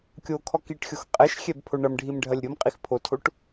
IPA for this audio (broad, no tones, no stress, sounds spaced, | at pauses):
kʲ o kʰ ɔ k i ʈ xʲ o x qʼ ɛ ʃ xʲ ɛ b pʰ o ɳ ɐ m ɖʱ i m ɖʱ ɐ lʲ ɾʲ o m qʼ i x pʰ o tʰ o ʈ